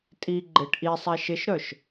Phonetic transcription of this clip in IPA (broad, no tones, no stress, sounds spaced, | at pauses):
tʼ i ɡ͡ǃ ɪ ʈ ʔ i sˤ ɛ ʃ ɪ ʃ ɾ œ ʃ